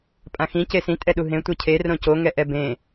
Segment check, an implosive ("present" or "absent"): present